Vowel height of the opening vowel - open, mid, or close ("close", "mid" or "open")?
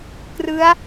close